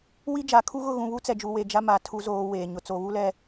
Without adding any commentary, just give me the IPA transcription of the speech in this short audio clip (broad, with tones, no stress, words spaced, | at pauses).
wi˦d͡ʒa˨kʰu˦ ɣʊ˦˨ɣũ˨βu˦ t͡sɛ˨d͡ʒu˨we˨ d͡ʒa˦ma˨ tʰu˨zoː˨ weː˨ɲʊ˨ t͡so˨βu˦lɛ˦